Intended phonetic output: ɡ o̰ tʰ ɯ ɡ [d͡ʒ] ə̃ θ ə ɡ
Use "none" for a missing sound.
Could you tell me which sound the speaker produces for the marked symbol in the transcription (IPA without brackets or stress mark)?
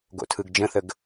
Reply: d͡ʒ